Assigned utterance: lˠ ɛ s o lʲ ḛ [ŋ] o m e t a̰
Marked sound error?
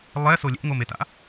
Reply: no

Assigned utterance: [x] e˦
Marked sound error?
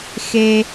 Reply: no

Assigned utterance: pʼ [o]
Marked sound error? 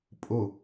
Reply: no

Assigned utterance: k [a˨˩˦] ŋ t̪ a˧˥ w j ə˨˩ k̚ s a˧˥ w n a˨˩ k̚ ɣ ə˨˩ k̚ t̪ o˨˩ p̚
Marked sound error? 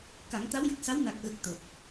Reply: no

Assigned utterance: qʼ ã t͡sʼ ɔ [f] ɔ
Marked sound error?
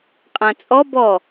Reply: yes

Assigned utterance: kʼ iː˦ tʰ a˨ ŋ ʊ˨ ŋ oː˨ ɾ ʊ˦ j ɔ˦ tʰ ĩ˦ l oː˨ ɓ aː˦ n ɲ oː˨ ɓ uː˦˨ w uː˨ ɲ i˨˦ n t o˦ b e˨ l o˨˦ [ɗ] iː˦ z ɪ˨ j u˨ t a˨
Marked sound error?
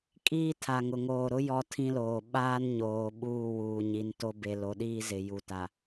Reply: no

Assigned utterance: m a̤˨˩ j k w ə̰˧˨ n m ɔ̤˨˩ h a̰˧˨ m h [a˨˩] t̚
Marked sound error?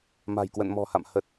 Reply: yes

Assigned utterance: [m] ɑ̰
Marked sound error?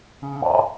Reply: yes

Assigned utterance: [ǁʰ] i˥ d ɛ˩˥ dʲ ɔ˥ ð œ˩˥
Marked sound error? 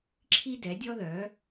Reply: no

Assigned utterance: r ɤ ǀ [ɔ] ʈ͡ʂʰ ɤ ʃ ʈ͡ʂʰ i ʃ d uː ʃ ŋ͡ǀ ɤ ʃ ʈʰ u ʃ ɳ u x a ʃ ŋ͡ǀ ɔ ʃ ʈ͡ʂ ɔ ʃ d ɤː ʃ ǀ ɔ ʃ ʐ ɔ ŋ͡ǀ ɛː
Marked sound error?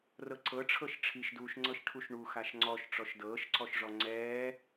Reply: yes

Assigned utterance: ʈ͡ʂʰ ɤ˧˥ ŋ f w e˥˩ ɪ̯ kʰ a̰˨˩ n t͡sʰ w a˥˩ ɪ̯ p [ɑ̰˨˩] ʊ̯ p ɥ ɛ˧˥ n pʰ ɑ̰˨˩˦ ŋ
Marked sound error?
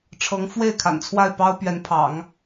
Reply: yes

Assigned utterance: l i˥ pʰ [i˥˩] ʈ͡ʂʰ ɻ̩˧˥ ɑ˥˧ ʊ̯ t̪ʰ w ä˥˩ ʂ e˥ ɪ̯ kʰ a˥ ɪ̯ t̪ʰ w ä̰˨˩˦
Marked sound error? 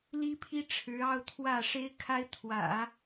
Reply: yes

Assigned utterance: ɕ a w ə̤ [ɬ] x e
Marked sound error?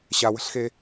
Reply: no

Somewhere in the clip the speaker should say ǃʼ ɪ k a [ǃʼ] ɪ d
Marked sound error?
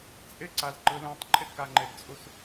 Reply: yes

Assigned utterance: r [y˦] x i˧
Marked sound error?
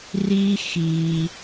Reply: yes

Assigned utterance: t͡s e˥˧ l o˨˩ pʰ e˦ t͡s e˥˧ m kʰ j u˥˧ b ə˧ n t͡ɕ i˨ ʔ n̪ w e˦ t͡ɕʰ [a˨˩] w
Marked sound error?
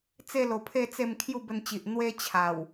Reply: no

